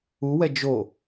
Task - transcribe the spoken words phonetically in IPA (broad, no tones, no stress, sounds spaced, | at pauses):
u w ɛ d͡ʒ o